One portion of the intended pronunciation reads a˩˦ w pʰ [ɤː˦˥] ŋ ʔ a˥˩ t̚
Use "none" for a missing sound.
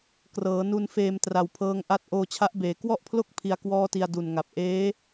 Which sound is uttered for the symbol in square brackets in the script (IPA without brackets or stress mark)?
ɤː˦˥